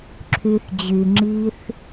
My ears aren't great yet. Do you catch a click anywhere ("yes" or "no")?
yes